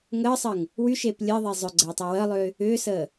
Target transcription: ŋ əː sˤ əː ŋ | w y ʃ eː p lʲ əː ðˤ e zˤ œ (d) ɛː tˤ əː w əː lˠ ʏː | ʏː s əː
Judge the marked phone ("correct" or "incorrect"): incorrect